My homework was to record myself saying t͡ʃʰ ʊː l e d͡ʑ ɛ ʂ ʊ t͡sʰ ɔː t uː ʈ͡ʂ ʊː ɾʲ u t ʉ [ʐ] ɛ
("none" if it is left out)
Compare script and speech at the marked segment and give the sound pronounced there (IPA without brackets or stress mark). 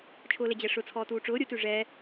ʐ